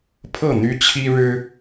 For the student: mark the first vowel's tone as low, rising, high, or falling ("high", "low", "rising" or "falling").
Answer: falling